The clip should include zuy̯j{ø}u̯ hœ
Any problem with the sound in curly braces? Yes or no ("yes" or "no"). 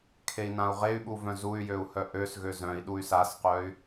no